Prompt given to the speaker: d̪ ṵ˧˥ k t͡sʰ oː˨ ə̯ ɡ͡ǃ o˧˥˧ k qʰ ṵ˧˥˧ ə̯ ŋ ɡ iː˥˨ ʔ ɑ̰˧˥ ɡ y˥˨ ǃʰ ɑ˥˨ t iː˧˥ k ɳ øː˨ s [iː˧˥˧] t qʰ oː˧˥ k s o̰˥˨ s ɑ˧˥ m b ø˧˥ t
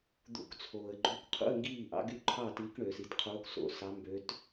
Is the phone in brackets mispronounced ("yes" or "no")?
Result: yes